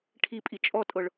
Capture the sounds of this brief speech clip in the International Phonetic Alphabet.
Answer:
ʈʰ i pʼ i t͡ʃʼ ɔ tʼ ɤ ɭ

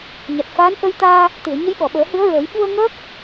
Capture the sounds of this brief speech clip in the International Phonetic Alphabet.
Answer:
ɲ a˨˩ t̚ f aː˧˥ n ʔ ə˧ j t̪ aː˧ | t̪ ɨ˨˩˨ ə̯ ɲ ə˧˥ j ɓ ɔ˨˩˨ ɓ əː˨˩˦ h ɨ˧˥ ə̯ ɹ əː˨˩˦ j ɓ u˧ ə̯ ŋ əː˦˥ k̚

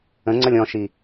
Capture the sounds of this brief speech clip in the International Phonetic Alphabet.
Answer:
ə̃ ŋ͡ǀ ʌ lʲ ɔ̃ ʃ i

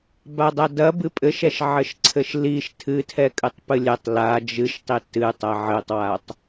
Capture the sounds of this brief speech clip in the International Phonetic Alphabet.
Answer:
b a dˤ a d ɐ b ɨ pʼ ɘ ʃ ɛ ʃ ʕ ɘ ʃ ǀʰ ɘ ʃ l i ʃ tʰ ɨ tʰ ɛ kʼ ɨ tˤ p ɨ lʲ ɛ tˤ l a d͡ʒ ɨ ʃ tˤ i t ɨ tˤ ɐ ʕ ɘ tˤ w a tˤ

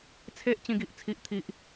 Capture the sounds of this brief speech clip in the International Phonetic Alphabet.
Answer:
t͡sʰ e˦ ʔ t͡ɕ ĩ˧ ɡ i˨ ʔ t͡sʰ i˨ ʔ t̪ʰ i˨ ʔ

